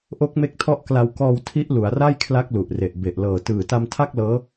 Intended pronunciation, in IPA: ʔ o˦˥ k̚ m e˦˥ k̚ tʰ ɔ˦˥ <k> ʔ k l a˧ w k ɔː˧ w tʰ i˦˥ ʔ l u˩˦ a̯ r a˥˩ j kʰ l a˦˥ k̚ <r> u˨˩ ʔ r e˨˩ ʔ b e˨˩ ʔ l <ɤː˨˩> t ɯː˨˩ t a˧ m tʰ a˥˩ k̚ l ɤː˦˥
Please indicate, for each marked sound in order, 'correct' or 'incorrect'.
incorrect: none, incorrect: l, correct

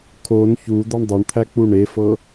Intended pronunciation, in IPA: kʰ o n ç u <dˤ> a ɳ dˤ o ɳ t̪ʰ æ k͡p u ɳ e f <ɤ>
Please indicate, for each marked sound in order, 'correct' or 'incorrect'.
incorrect: d̪, correct

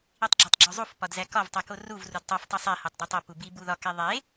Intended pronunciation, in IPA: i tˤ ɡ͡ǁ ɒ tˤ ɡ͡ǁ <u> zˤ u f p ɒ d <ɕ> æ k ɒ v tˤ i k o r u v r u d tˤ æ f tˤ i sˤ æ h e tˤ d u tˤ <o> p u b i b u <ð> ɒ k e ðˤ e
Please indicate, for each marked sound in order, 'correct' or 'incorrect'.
incorrect: o, incorrect: z, correct, correct

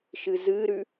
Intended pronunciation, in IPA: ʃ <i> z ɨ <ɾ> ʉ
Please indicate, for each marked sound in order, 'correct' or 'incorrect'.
incorrect: ɨ, correct

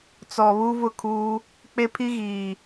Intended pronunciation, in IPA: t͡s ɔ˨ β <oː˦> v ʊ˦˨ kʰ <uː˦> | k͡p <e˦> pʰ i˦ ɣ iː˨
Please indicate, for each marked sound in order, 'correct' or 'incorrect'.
incorrect: uː˦, correct, correct

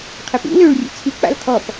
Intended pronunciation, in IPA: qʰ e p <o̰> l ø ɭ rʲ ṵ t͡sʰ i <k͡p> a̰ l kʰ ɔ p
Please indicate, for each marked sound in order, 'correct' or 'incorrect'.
incorrect: ṵ, correct

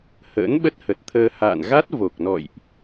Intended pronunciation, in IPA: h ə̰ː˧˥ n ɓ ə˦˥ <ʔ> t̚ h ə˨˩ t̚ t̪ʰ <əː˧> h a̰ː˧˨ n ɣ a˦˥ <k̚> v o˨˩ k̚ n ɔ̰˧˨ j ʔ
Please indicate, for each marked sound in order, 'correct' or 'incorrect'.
incorrect: none, correct, incorrect: t̚

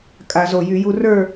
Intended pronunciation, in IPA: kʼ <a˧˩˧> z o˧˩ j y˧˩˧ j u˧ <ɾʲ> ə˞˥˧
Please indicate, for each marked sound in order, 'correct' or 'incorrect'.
correct, incorrect: r

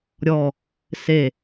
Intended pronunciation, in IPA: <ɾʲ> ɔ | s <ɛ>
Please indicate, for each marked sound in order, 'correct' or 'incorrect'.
correct, incorrect: e

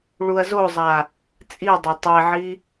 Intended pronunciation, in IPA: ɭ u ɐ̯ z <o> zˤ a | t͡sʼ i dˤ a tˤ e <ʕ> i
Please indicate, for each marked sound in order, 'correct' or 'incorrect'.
correct, correct

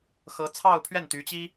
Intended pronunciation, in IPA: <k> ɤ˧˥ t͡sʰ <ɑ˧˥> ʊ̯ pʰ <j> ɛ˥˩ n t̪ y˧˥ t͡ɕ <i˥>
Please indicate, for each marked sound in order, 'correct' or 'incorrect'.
incorrect: x, incorrect: ɑ˥˧, incorrect: ɥ, correct

